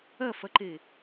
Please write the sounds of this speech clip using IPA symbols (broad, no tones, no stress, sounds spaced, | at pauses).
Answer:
ɐ f ɐ ǃ e